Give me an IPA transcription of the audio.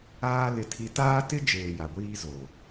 aː˦ l ɪ˦ tʰ i˦ t aː˦ t ɪ˦ d͡ʒ eː˨ j a˨ ɡʷ iː˦ z o˨

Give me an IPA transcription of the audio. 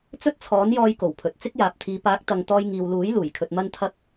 t͡s ɵ˥ t̚ t͡sʰ ɔː˨˥ n j ɔː˧ j k o˨˩ w pʰ ɵ˨ t̚ t͡s ɪ˥ k̚ j aː˨ p̚ t̪ʰ iː˨˧ p aː˨˥ k̚ t̪ ɐ˨ ŋ t̪ ɔː˧ j ŋ iː˨ w l uː˨˥ j l uː˨˩ j kʰ ɵ˧ t̚ m ɐ˥ n t̪ʰ ɐ˥ k̚

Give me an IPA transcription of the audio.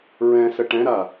ɹ ɛ̃ s ə ʈ ɛ̃ ɾ a

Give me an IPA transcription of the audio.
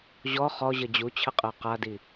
ʑ ɔ χ ɔ ʑ ə d͡ʑ u t͡ɕʰ ə qʼ ɜ q a d i

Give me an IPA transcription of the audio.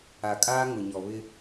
a˨ kʼ aː˦ ŋ ʊ˨ ɲ ɔ˨ β ɪ˦

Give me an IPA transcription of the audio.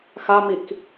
x a m i k

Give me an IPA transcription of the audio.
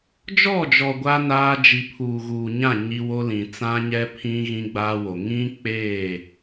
d͡ʒ ɔ˦˨ d͡ʒ ɔ˨ ɡʷ a˦ n aː˦ d͡ʒ i˨ pʰ uː˨ ɣ uː˨ ɲ ã˦˨ ɲ i˦ w o˦ l ĩ˨ t͡s ã˦ ɲ ɛ˦ pʰ ĩ˦ ɣ ĩ˦ ɡ͡b aː˦ w o˨ ŋ ĩ˦ k͡p eː˦˨

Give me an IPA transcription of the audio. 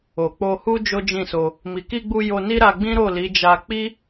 o˨ k͡p o˧ h u˦ d͡ʒ o˦ d͡ʒ ĩ˦˨ s o˧ | m i˨ k i˧ ɡ͡b u˧ j o˧ n i˦ ɾ a˧ ɡ͡b ĩ˦ ɾ o˦˨ l i˨˦ d͡ʒ a˧ k͡p i˦

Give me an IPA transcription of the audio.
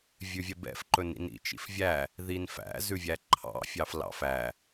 vʲ ʉ vʲ ɛ b ɛ̰ f ǃ ɵ n ḭ n ḭ t͡ʃ ḭ f vʲ æ | ð i n f æ̰ z ʉ vʲ æ ǃʰ ɑ̰ fʲ ɑ f l ɑ̰ f æ

